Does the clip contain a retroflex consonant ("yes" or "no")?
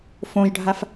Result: yes